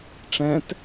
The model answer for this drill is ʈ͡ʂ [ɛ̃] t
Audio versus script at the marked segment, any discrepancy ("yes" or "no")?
no